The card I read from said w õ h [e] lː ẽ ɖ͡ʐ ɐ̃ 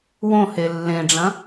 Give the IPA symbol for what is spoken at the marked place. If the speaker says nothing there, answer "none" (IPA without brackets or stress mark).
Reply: e